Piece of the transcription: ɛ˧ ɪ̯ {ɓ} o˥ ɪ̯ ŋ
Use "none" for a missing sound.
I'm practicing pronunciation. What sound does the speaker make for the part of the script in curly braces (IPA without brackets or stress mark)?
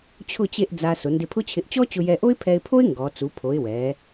pʰ